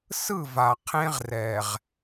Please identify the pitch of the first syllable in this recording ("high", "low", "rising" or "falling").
falling